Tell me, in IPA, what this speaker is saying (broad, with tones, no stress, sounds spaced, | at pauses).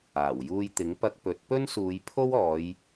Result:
aː˨˩ w j uː˧ j t̪ ɪ˨˥ ŋ p ɐ˧ k̚ p ɵ˨˥ t̚ p ɵ˥ n s uː˨˧ j pʰ o˥ w ɔː˨˧ j